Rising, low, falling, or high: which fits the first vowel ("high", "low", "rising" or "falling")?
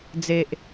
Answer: low